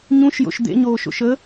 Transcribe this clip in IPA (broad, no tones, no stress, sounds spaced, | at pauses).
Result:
ɲ ũ ʃ j o̰ ʃ d̪ ḛ ɲ oː ʃ o̰ ʃ ə